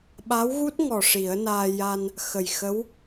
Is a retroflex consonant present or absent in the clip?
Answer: present